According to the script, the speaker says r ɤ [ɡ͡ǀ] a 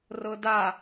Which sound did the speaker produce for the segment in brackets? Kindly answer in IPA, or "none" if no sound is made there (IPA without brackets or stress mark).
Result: d